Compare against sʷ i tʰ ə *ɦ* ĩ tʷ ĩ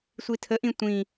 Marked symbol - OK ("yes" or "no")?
no